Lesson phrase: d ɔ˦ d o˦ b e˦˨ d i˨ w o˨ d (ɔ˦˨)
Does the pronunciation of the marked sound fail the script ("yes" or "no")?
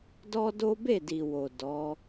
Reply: yes